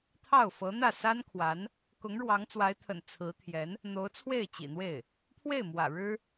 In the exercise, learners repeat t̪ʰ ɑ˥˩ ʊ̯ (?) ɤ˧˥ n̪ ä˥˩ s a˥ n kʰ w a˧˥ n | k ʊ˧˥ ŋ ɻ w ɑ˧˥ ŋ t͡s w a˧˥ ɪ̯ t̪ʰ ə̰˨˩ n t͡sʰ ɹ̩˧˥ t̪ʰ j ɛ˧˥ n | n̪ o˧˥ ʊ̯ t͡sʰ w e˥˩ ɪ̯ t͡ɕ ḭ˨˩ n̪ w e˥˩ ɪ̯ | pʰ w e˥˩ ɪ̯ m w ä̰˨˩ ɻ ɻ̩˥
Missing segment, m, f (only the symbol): f